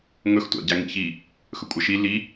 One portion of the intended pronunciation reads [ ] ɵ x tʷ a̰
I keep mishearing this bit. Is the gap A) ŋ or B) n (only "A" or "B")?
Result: A